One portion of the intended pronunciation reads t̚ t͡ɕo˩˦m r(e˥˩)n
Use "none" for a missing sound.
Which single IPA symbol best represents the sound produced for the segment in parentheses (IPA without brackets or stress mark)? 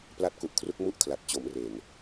e˨˩